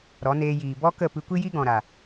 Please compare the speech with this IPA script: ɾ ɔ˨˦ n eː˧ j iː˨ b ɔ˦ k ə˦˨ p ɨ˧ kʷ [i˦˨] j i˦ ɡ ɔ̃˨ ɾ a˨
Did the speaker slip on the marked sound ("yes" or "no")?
yes